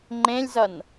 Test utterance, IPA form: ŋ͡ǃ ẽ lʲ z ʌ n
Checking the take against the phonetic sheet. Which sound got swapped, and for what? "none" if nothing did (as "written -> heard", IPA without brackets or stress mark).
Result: none